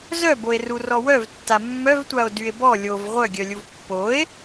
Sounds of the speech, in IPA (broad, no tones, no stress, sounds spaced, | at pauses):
z œ b o e̯ r u r ɔ w œ v tː a mː œ v tʷ a o̯ d y e̯ b ɔ lʲ o v ʁʷ œ ɡʲ œ lʲ u v pː o e̯